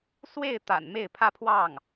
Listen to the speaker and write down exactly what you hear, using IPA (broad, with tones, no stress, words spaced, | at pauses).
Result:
swe˥˩ɪ̯t̪a̰˨˩n me˥˩ɪ̯pʰä˥ pʰwɑ˥˩ŋ